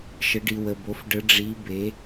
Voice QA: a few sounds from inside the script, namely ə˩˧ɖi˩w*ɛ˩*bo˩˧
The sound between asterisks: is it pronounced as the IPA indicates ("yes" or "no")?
no